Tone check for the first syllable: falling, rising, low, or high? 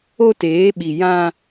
high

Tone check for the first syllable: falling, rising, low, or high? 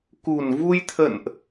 low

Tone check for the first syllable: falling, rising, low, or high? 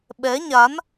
rising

